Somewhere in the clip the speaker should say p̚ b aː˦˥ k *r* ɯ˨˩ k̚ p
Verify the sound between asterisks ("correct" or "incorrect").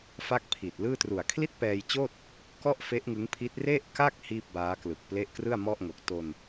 incorrect